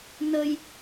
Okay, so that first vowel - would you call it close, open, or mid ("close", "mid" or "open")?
mid